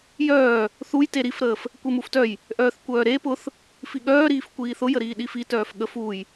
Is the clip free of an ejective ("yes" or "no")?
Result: yes